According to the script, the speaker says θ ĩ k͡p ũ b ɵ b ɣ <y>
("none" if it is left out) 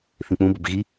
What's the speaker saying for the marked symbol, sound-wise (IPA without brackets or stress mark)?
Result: i